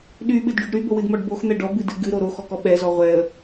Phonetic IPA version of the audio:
ɗyɓɨdɖyɖ ɾybowɨdmɔɖ boxn̪ɛ ɖɔbɨdɨ ɡɨɾo ɾoxɔkɔ ɓɛzɔ ʁʷɛə̯

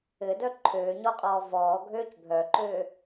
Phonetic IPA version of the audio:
ɘdœ ǃʰøːɲɔqʼɔː vɔːɡʱøːc bʱœǃø

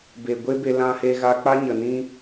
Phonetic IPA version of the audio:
be˨ɡʷe˦be˧ lã˧he˧ɣa˧k͡pa˦ ɲə˨nĩ˦

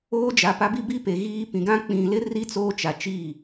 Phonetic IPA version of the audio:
oː˦d͡ʒa˨ pa˦bi˦ bi˦ pe˨ɣiː˦ pĩ˨ɡã˦ k͡pĩ˨ lɪ˦ri˦ t͡soː˦t͡ʃa˨t͡ʃiː˦˨

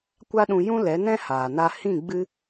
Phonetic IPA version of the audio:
kʷa˦ ɗũ˧ jũ˦ lɛ˨˦nɛ̃˦ haː˨na˧ hĩ˦˨ɡ͡bɨ˦

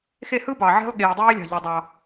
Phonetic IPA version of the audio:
xe˦˨hɯ˦bɑ˨ ʕe̤˦lˠ ɠeː˨dˤeː˦lʲɑ̤˨ʎɯ˨ dˤɑ˦

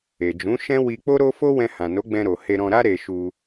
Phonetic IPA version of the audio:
e˨d͡ʒũ˨˦ ʃɛ̃˦ wi˧k͡po˦ɾo˦ fo˦wɛ̃˧ hã˨no˨˦ɡ͡bɛ̃˧ɾo˨ he˧ɾɔ̃˧ɾa˦ ɾe˧ ʃu˧

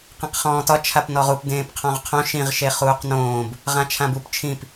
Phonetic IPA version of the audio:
qĩqχɔ̃ːtɒ t͡ʃʰapnɔʁup dẽːpqʰɔ̃ʁqʰõ ʃĩʁ ʃeχuːqnõːb | ʁãt͡ʃʰãbup t͡ʃʰĩp

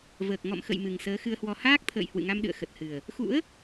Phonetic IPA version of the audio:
vəː˨˩k̚ ŋɔ̰˧˨mxə̰˧˨j mɨ˨˩ŋsəː˨˦xɨ˧ə̯hwɔ˧ haː˦˥k̚t̪ʰə̰ː˧˨j hwɨ̰˧˨ŋa˧mɗɨ̰˧˨ə̯ xə˨˩t̚hɨ˨˩ə̯ | xṵ˧˥ə̯

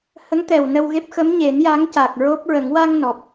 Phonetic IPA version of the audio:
hə˧˥ŋt̪ɛ˨˩w nə˧wɣe˦˥p̚ xə˧˥m ɲe˨˩˦nja˧˥ŋ ca˨˩k̚ɹo˦˥p̚ɹə˨˩˦ŋ wa˧ŋ nɔ˨˩p̚

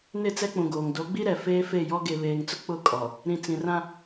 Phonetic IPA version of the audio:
nɪ˦˨t͡sɛ˦k͡pũ˨ɡoː˨ŋ do˨˦ɡ͡bi˦ɾɛ˨ feː˦fe˦˨jɔ˦ ɡe˨βeː˨ŋt͡sʊ˦ k͡pʊ˦˨kʼɔ˨ | ɾĩ˨ t͡sĩ˨rã˦

